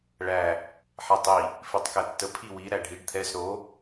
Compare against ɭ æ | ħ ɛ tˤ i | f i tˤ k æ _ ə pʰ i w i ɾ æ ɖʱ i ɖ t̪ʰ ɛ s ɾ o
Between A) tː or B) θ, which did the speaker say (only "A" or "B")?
A